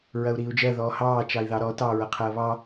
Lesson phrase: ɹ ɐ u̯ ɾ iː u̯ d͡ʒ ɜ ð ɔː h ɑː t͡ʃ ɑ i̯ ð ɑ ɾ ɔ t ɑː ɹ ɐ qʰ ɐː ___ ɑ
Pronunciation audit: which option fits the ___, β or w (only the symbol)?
β